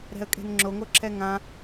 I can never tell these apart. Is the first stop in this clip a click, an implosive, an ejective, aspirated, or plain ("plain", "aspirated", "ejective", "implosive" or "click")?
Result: ejective